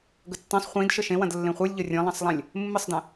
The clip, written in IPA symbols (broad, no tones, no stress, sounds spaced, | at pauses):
ɡ ə tː ĩ sˤ χʷ ĩ d ʃ ə ʃ ẽ w ɐ̃ d lː ẽ χʷ ɨ lʲ ʎ ə rʲ ə̃ lˠ ɐ̃ sˤ lˠ ɛ̃ lʲ | mː ɨ sˤ d ɛ̃